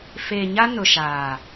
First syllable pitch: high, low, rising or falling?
low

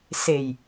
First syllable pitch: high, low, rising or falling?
low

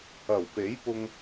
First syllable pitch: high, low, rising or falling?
low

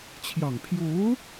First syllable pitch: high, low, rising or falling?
low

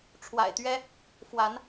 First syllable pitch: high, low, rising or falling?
low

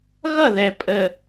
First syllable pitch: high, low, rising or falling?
falling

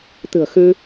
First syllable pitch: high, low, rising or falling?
low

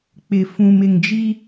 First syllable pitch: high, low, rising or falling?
low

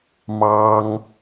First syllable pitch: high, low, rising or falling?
high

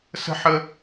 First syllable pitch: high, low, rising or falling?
high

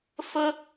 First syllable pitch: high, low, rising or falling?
high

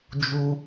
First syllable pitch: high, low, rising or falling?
high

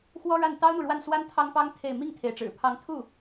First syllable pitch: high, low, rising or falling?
high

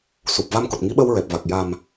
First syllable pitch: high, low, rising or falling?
low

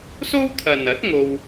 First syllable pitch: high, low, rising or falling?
high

